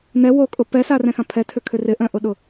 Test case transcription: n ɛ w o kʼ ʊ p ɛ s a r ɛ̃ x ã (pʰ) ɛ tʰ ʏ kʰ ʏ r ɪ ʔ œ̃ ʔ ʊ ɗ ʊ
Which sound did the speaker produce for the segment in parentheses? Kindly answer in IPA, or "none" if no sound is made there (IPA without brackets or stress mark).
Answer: pʰ